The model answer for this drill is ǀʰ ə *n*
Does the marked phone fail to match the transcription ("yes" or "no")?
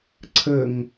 yes